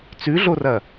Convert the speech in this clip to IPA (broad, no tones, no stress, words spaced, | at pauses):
t͡sʉɮorɐ